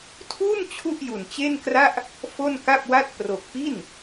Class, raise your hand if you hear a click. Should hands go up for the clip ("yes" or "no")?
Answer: no